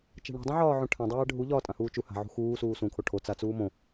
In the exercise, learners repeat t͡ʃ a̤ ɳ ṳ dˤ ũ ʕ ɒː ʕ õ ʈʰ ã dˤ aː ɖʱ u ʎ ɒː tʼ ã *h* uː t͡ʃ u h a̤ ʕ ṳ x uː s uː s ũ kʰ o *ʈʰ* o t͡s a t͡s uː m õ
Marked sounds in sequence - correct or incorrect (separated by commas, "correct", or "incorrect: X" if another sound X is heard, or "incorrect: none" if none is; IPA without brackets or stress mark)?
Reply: correct, correct